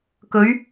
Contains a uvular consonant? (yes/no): no